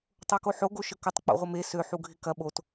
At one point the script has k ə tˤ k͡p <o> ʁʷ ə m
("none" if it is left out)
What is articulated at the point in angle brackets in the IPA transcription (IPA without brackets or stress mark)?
o̰